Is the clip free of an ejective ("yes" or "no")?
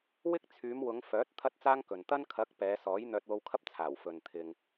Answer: yes